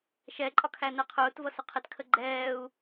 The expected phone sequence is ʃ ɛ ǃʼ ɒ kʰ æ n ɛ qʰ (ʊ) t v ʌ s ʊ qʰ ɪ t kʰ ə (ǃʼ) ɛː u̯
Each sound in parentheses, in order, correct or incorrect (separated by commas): incorrect, incorrect